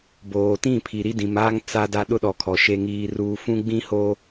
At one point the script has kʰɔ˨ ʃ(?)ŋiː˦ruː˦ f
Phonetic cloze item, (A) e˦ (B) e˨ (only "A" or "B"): A